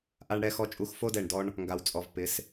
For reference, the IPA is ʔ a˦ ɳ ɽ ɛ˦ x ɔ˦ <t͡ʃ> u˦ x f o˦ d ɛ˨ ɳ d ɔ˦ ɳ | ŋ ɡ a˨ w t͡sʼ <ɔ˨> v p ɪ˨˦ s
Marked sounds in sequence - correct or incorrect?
incorrect: t͡ʃʼ, correct

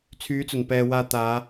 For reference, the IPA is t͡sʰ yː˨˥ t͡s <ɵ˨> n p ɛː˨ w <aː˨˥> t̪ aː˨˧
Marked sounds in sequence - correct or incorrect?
incorrect: ɵ˨˩, incorrect: aː˧

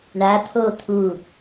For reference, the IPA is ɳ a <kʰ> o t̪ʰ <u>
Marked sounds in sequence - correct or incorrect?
incorrect: t̪ʰ, correct

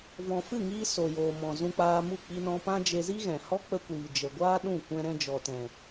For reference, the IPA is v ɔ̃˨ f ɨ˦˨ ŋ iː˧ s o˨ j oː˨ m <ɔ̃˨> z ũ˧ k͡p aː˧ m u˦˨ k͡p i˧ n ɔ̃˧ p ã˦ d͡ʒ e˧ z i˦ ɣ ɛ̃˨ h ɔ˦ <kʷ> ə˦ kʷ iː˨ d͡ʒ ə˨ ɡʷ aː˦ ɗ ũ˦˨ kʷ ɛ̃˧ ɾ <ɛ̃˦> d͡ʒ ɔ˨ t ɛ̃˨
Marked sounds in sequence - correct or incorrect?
correct, incorrect: k͡p, incorrect: ɛ̃˧

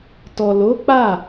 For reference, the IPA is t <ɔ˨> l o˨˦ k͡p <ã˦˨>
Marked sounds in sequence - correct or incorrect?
correct, incorrect: a˦˨

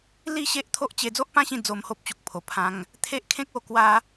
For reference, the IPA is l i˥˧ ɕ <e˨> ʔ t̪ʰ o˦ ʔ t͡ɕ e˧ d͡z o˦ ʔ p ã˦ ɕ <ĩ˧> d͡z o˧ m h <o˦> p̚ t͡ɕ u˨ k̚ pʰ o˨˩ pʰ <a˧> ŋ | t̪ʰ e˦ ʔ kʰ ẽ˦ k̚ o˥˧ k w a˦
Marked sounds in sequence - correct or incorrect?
incorrect: e˦, correct, correct, incorrect: ã˧

